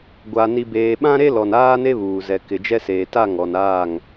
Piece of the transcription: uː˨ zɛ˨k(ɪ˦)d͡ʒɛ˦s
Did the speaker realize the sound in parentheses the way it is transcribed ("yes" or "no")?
no